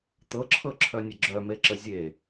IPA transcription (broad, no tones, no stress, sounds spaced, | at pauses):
t̪ ɤ ǁʰ ɤ ǁʰ œ nʲ ə ɡ͡ǁ œ m e ǁ ə zʲ e